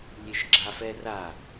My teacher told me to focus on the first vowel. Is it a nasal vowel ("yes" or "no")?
no